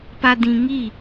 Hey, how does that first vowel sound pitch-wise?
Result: low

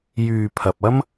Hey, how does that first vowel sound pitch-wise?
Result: low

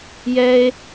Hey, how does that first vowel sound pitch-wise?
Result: high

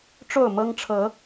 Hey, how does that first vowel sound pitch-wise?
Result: falling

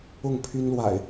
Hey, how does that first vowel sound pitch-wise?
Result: falling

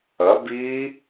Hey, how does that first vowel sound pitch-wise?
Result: rising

